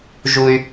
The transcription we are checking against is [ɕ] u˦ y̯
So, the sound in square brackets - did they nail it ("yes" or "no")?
no